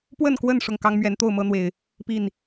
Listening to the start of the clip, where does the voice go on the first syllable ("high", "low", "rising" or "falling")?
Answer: falling